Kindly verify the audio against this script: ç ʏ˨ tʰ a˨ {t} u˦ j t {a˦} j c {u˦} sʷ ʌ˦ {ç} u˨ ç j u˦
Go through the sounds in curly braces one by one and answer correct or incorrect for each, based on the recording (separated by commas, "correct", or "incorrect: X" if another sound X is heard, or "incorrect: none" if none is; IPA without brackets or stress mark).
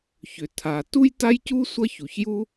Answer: correct, correct, correct, correct